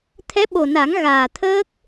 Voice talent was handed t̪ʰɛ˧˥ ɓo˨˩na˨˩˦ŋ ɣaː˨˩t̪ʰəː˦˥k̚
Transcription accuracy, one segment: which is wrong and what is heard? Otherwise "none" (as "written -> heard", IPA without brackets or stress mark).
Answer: none